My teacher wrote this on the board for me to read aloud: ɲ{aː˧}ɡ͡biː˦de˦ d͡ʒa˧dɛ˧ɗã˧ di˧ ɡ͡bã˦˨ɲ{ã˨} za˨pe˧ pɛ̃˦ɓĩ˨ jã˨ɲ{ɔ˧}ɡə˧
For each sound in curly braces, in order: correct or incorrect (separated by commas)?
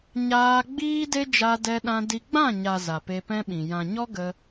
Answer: correct, incorrect, incorrect